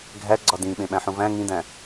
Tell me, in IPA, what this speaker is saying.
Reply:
ɡʱ æ ɡ͡ǀ ɒ d ĩ ɓ ẽ ɓ æ̃ ħ ũ v æ̃ ŋ ĩ d æ̃

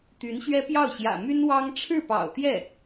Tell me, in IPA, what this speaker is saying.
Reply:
t̪ y˧˥ n ɕ ɥ ɛ˥ p j ɑ˥˩ ʊ̯ ɕ j ä̰˨˩ m y˥ n w ɑ˥ ŋ ʈ͡ʂʰ ɻ̩˥˩ p ɑ̰˨˩ ʊ̯ t̪ j ɛ˥˩

